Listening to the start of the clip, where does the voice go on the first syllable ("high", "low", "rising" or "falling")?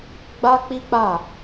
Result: high